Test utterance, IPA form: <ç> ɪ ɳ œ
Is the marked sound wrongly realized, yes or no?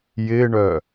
yes